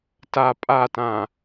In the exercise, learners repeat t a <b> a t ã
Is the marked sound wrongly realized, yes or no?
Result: yes